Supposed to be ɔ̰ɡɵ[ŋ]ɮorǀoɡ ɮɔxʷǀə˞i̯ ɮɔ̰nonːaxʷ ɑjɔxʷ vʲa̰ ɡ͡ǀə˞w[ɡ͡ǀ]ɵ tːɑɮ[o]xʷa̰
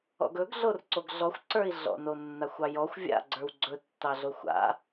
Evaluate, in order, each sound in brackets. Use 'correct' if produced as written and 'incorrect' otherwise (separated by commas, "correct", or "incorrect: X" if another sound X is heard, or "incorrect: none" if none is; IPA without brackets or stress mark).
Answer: incorrect: ɡ, correct, correct